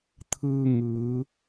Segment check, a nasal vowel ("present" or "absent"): absent